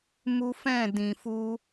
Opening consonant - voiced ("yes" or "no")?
yes